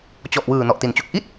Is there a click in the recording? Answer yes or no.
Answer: no